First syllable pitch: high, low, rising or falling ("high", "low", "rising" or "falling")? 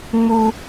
high